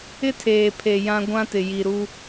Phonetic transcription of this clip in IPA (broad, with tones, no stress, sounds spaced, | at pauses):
ɪ˦ tʰ eː˨ pʰ e˨ j ã˦ ɡʷ ã˦ t ɪ˨ j i˨ ɾ u˦